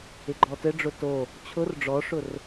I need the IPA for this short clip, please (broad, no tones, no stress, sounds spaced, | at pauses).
ɪ ɡ͡ǃ ɔ t ɘ ɖ͡ʐ ʊ t o | t͡ɕʰ ʊ r ɖ͡ʐ ɔ ʂ ʊ r